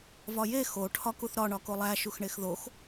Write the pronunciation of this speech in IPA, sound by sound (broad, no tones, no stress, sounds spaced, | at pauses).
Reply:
v ɒ j e x o ʈʰ ɒ k u θ ɾ ɒ ɳ ɒ k o lˠ æ ʃ u x ɳ e x ð o x